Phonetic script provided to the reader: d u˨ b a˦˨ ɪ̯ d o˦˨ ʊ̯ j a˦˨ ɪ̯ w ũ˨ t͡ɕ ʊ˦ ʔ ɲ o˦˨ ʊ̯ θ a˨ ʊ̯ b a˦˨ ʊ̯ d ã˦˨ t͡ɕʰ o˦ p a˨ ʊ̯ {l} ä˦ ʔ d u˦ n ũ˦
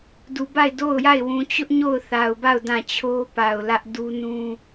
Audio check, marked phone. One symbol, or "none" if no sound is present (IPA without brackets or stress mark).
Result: l